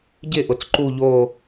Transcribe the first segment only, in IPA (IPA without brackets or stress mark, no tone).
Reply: ɟ